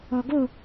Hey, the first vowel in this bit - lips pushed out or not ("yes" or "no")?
yes